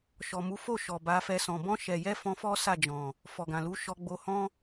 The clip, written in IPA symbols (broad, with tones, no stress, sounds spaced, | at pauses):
ʃ ɔ˨ m u˨˦ f o˦˨ ʃ ɔ˨ b a˨˦ f ɛ˧ s ɔ̃˨ b ɔ̃˧ ʃ ɛ˨ j ɛ˧ f ɔ̃˧ f ɔ˦ s a˦˨ d͡ʒ ɔ̃˨ | f ɔ˨ ɡ ã˨ l u˨˦ ʃ ɔ˧ ɡ͡b o˧ h ɔ̃˦